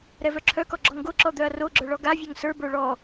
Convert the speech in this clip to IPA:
ɾɛvœǁʰœkɔ ɡ͡ǁɔŋɡoǁɔ d̪œɐ̯roɡ͡ǁœ ɭɔɡavʲœŋ sə˞bə˞ ɭɔ

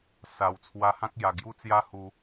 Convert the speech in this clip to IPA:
sa˨˩w t͡sʰwa˧hã˦k̚ja˨˩ ɡju˦t͡sja˦hu˧

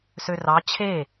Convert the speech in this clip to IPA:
sørɑ t͡ɕʰe

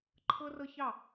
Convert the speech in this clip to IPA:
ǃʰɤ˦rɤ˦çɑ˦˨

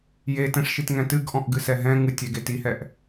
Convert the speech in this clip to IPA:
jetɛ̃ʂʃitŋɛ̃ tɨɡʔɔ̃ʔɡɨsɛ ɦɛ̃ ŋɨtʲɛɡet ihɛʔ

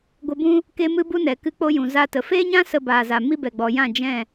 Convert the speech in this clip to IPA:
ɡʷə˧bũ˦ | ke˦mɨ˦bu˦nɛ˨ kɨ˦k͡po˦ jũ˨za˧tə˨ feː˦ɲã˦ sə˧baː˨za˨ mi˦bɛ˨ɡ͡bɔ˨jã˦˨ d͡ʒɛ̃˦˨

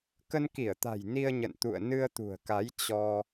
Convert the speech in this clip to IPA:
kə˧nki˧˩ə̯t̪a̤˨˩j ni˧ə̯ɲə̰˧˨n t̪ṵ˧˨ə̯ nɨ˧ə̯t̪ṳ˨˩ə̯ka˨˦j t͡ɕɔ˧

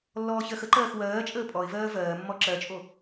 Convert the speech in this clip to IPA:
lːɔːçɜxəǃɜːx wɜːt͡ʃʼəː pʼɔɪ̯vɜː vɜːmːɔ ǁɜt͡ʃʼo

